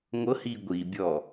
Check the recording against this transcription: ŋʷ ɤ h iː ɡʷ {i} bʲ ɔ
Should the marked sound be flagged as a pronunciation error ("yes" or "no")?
no